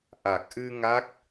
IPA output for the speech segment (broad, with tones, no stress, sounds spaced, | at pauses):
ʔ a˨˩ k̚ ʔ ɨ˧ ŋ a˦˥ k̚